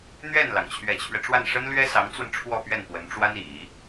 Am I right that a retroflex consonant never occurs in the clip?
no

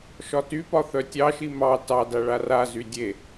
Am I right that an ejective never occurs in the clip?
yes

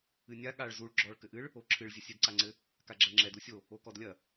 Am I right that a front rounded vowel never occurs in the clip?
yes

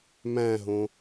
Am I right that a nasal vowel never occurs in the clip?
no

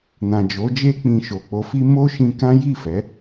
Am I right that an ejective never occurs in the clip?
yes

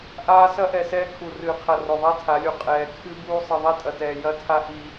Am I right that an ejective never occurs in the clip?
no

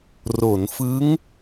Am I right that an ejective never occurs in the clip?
yes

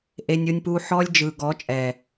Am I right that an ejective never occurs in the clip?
no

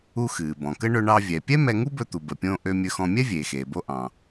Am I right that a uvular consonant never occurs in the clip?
yes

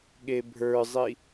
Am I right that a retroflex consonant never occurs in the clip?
yes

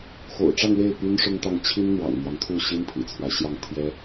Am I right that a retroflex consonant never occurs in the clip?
no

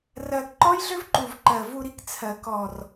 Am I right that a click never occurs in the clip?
no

